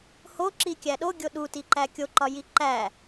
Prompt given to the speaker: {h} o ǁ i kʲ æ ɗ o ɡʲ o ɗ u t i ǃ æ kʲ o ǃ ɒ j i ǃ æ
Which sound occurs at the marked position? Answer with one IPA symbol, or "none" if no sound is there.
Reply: h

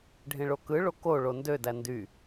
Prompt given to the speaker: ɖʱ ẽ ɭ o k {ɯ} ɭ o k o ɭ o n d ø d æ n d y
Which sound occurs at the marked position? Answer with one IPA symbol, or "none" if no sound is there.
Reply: ɯ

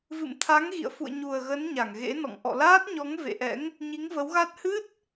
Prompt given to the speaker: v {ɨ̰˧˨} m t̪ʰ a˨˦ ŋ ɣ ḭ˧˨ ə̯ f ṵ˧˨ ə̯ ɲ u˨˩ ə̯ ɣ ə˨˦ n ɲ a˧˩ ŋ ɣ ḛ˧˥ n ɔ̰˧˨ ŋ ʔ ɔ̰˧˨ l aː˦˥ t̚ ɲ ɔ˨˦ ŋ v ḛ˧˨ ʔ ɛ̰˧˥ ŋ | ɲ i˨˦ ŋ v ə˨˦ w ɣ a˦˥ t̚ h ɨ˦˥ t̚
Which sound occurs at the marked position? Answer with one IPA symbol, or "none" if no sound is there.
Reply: ɨ̰˧˨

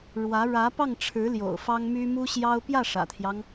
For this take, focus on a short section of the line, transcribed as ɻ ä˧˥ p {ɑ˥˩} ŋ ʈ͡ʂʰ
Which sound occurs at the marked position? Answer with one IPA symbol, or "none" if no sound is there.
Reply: ɑ˥˩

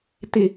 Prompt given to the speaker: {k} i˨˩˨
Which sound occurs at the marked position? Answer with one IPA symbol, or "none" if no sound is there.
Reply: t̪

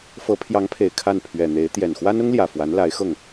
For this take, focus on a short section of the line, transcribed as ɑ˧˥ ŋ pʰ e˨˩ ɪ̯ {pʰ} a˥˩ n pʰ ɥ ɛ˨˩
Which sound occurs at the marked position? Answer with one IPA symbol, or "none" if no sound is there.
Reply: kʰ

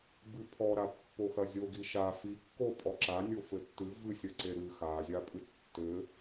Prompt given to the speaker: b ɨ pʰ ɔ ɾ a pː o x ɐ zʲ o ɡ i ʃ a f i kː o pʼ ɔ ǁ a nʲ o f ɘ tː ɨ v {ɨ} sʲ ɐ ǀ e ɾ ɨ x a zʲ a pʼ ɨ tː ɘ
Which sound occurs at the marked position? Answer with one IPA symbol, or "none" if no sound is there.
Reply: ɨ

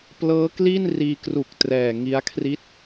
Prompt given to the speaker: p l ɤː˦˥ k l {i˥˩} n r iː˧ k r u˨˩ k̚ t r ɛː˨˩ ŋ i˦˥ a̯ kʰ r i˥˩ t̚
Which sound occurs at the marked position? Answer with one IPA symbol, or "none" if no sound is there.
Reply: i˥˩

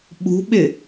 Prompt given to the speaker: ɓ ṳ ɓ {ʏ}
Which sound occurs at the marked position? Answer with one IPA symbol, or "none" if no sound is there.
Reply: ɪ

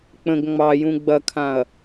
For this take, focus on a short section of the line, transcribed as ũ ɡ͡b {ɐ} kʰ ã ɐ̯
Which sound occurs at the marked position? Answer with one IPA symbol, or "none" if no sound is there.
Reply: ɐ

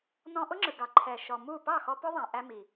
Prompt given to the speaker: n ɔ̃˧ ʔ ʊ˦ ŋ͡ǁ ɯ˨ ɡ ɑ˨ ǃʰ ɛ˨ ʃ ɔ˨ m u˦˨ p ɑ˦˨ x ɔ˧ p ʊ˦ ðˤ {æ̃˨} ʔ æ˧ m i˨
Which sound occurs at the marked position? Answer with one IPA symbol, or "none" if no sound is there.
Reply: æ̃˨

